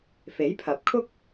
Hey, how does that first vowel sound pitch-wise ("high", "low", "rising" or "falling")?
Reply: rising